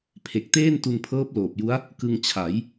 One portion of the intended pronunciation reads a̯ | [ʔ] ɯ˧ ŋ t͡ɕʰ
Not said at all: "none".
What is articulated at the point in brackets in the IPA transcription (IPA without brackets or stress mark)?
k